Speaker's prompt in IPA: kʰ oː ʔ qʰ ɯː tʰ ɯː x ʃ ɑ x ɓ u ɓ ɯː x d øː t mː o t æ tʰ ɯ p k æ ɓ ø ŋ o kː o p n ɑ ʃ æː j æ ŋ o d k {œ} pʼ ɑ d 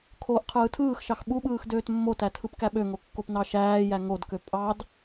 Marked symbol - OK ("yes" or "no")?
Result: no